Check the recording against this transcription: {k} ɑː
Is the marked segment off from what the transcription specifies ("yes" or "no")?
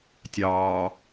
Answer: yes